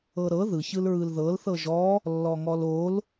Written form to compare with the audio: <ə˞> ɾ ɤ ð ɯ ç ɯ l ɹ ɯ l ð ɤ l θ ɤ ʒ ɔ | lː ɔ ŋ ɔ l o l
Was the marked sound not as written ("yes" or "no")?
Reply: yes